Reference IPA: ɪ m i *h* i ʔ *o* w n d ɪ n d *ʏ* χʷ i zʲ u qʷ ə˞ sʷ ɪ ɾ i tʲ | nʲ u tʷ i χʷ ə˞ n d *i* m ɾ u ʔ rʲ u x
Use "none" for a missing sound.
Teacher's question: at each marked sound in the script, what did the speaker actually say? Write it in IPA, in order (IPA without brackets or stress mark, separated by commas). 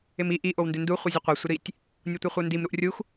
ʔ, o, u, i